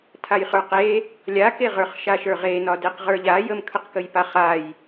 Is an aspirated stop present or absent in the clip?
present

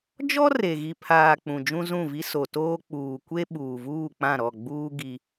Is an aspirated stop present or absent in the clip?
present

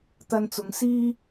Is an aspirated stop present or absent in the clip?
absent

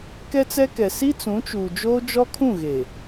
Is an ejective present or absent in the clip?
absent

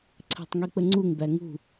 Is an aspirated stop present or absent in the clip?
present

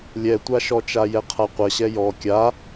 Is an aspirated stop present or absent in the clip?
present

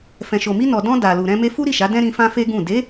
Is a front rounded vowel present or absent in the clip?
absent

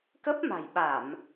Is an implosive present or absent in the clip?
present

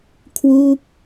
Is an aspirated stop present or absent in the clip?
present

